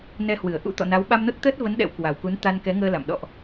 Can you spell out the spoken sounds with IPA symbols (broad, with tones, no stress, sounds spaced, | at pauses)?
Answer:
n ɛ˧ h w ɨ˧˩ ə̯ ʔ ṵ˧˥ t̪ ɔ̰˧˨ n a˨˦ w ɓ a˧ m n o˦˥ t̚ t̪ əː˦˥ t̚ v ə˨˦ n ɗ ɛ̰˧˥ w k w a˨˩ w k u˨˦ n t̪ a˧ n k ɛ˨˦ ŋ əː˧ l a̰˧˨ m ɗ ɔ̰˧˨ ʔ